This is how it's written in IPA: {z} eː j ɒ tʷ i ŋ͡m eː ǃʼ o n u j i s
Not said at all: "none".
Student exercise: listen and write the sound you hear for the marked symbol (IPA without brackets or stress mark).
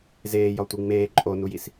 z